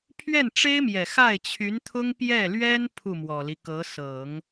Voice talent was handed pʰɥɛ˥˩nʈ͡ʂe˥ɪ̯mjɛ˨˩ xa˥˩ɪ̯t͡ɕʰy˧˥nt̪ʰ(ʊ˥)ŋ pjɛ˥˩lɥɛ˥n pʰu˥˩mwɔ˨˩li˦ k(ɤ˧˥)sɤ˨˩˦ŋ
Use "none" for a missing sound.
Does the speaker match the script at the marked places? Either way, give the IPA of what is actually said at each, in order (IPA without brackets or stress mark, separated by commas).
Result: ʊ˥, ɤ˧˥